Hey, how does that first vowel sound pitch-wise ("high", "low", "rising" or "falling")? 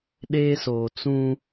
high